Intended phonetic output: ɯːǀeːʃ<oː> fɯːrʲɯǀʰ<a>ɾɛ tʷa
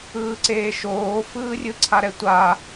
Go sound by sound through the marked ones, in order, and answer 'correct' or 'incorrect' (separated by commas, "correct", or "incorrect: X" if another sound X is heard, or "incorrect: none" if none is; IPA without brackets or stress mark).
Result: correct, correct